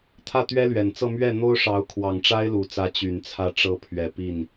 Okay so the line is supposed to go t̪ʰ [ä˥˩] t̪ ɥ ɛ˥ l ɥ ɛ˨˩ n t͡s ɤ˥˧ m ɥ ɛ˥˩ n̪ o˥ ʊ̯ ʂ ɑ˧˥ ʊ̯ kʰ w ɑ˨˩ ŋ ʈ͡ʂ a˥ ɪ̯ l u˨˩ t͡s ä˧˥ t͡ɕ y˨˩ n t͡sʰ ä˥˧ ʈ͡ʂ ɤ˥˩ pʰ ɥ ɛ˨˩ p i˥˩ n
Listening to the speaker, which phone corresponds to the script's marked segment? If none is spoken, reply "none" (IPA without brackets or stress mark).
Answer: ä˥˩